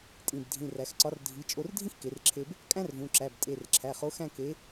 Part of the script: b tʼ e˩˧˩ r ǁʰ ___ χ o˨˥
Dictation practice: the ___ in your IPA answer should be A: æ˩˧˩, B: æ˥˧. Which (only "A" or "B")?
A